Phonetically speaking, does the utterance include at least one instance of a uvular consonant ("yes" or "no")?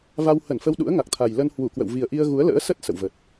no